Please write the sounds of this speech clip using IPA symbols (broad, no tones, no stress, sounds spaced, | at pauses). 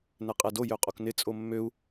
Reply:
n ɛ qʼ ɛ d o j ø qʼ o k n ɪ t͡sʼ o mː ø u̯